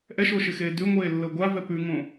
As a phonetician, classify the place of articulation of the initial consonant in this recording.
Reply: glottal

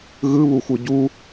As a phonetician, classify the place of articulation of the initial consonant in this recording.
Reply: velar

